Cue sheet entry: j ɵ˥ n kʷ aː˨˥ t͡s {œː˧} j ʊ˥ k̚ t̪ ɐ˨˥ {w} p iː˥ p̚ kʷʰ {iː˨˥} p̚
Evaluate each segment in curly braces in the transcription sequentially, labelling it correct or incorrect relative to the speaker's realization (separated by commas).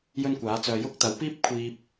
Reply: correct, correct, incorrect